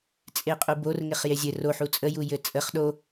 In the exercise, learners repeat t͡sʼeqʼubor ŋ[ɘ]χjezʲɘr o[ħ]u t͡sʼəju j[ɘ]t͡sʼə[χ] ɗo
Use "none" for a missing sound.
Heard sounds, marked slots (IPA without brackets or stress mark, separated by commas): e, ħ, ɘ, χ